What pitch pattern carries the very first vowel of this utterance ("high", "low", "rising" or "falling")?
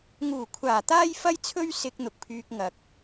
low